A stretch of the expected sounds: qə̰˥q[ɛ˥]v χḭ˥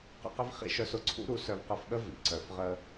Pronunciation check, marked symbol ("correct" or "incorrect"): incorrect